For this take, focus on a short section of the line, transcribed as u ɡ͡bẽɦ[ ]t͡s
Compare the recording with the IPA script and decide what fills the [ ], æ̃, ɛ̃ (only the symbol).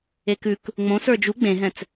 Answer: ɛ̃